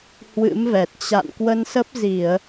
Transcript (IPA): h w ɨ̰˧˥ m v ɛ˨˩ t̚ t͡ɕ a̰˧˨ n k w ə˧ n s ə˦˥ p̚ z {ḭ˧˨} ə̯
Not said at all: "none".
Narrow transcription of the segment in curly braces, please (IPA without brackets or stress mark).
i˧˩˨